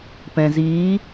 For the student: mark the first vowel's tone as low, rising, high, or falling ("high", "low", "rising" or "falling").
low